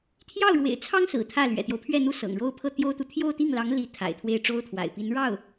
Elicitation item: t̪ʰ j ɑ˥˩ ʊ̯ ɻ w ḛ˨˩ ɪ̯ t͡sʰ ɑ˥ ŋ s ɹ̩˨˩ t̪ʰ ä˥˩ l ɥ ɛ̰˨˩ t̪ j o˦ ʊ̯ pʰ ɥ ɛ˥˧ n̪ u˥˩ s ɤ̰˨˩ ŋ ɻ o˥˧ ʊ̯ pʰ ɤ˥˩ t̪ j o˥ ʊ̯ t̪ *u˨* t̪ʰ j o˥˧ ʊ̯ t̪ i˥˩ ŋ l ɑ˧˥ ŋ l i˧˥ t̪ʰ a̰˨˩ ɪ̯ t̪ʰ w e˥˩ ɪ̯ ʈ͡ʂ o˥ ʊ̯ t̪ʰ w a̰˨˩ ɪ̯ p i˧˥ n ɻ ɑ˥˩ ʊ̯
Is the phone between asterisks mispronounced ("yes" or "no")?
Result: no